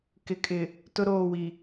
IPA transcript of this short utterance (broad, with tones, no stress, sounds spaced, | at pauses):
k ɪ˨ kʼ ɪ˨ | t ʊ˦ ɾ oː˦˨ w i˨